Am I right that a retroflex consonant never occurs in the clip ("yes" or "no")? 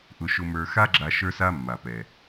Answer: yes